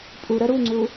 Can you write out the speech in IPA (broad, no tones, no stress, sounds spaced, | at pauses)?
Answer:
pʼ u ɾ œ ɾ u ŋ͡ǀ u